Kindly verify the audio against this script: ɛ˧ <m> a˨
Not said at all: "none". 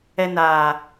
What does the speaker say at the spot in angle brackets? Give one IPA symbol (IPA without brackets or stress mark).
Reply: n